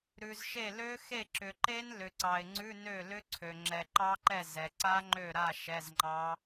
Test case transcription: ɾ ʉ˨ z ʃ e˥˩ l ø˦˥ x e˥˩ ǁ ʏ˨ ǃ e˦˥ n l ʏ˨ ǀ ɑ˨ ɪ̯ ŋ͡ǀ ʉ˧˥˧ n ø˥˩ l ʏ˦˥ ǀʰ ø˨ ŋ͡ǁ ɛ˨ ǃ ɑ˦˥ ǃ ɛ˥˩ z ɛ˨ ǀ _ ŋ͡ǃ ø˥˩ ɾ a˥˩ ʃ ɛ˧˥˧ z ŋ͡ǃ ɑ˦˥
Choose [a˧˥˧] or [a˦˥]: a˦˥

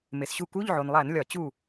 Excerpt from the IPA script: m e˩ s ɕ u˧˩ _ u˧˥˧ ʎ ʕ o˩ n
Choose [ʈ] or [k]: k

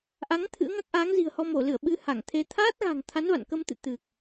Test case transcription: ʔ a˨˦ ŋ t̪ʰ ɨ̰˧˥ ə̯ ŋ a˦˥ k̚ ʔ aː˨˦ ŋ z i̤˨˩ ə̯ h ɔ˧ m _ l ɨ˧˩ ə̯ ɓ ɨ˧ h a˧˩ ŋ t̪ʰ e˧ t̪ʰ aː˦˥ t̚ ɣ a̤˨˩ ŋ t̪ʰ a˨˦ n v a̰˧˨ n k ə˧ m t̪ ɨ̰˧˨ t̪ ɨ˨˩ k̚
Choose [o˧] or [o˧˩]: o˧˩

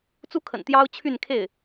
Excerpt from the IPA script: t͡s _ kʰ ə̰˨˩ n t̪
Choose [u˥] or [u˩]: u˥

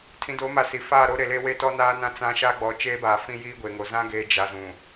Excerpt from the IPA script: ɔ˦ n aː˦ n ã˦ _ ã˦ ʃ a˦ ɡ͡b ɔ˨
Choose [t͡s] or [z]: t͡s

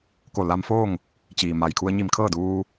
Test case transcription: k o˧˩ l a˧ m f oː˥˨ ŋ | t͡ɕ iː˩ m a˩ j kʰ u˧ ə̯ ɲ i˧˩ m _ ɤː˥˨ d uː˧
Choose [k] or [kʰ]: kʰ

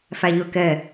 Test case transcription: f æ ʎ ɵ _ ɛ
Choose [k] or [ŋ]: k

